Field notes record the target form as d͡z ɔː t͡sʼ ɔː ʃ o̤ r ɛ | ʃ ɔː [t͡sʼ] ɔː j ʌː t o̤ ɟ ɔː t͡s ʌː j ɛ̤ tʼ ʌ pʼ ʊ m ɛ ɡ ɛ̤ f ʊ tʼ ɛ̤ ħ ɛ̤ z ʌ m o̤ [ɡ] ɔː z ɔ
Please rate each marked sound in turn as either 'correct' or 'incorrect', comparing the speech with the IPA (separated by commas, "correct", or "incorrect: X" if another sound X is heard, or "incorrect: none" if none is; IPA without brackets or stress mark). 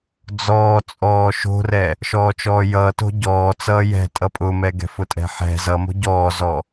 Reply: incorrect: t͡ʃ, incorrect: ɟ